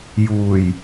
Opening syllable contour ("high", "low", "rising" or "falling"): low